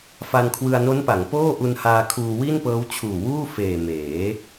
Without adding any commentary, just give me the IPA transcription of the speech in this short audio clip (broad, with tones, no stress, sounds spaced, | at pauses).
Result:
f a˧ n kʰ w ɯ˧ a̯ n o˦˥ n p a˩˦ ŋ p oː˥˩ ʔ u˧ n h aː˧ kʰ uː˧ w i˥˩ n p ɤː˦˥ w t͡ɕʰ uː˨˩ w uː˥˩ f eː˨˩ m eː˩˦